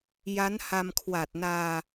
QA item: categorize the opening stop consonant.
aspirated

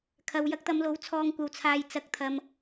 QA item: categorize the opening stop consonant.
aspirated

